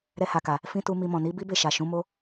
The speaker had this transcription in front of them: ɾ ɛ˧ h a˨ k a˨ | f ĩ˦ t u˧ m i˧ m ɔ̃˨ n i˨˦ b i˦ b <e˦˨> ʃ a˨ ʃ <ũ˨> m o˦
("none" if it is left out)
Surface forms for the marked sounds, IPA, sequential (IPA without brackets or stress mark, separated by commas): e˦˨, ũ˨˦